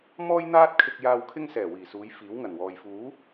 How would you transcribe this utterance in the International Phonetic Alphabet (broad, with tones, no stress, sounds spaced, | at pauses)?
m ɔː˥ j n̪ aː˥ t̚ kʰ ɪ˧ k̚ j aː˧ w kʰ ɪ˥ ŋ s ɛː˨˩ w iː˨˩ s uː˨˧ j f iː˨˥ w ŋ ɐ˨˩ n w ɔː˨ j f uː˨˥